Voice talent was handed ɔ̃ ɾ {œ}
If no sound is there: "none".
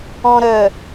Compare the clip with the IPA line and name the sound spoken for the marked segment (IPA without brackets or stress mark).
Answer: œ